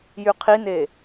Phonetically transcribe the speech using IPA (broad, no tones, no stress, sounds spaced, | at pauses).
j y qʰ i n e